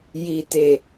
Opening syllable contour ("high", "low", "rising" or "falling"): low